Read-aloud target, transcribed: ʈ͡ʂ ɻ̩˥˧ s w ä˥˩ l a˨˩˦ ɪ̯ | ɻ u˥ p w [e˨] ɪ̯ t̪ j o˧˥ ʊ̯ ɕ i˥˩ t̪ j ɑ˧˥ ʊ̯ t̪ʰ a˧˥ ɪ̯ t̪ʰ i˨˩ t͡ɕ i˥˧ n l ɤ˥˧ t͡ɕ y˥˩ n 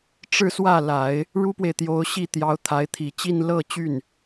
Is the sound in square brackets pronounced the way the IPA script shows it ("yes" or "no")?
yes